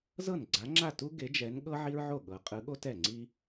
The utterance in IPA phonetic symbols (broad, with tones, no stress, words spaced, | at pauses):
zɤ˥˩n ɡ͡ǀa˨˦ŋ͡ǁa˥˩ tu˥ ɡe˨˦d͡ʒɛ˨˦n ɠɤ˥ ʕi˥ɹʕo˥˩ɠɤ˨˦ qʼɯ˨˦ɠo˥ tɛ˥˩ŋ͡ǀi˥